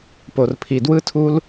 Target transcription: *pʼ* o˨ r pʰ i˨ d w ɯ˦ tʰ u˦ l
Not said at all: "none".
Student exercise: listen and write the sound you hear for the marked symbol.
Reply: p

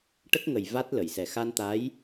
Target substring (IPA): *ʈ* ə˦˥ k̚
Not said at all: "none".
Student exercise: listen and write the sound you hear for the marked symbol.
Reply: ʈ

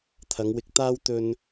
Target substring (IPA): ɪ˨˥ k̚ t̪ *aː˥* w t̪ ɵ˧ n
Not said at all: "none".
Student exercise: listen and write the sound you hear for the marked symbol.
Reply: aː˥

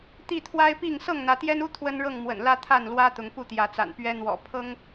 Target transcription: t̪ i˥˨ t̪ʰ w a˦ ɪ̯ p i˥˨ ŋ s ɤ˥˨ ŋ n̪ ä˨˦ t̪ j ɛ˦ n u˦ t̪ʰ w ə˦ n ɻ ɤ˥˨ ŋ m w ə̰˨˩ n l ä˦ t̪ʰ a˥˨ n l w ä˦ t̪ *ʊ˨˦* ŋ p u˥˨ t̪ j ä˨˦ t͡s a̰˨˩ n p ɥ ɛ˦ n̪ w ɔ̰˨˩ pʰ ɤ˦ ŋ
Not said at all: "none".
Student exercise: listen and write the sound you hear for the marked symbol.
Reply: ʊ˨˦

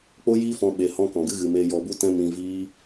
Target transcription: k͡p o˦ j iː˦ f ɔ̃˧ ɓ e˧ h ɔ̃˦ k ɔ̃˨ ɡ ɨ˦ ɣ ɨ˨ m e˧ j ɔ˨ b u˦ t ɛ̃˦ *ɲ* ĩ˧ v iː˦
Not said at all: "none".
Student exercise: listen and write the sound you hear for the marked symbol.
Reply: m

